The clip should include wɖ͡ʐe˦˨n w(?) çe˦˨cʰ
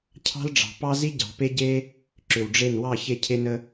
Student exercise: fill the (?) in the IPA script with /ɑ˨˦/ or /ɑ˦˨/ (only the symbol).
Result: ɑ˦˨